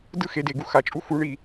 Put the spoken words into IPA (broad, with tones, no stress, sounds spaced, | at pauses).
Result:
d ɯ˦˨ x e˨˦ d e˨ ɡ u˦ x a˨ t͡ʃʼ u˦ x u˨˦ ɳ i˨